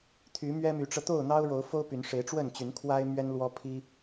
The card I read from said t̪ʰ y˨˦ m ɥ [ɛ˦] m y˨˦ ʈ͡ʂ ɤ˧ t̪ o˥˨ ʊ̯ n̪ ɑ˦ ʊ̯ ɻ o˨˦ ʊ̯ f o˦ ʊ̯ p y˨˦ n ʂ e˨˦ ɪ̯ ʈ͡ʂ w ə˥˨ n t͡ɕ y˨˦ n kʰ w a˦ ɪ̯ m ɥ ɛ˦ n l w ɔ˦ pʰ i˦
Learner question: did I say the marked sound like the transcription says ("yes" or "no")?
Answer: yes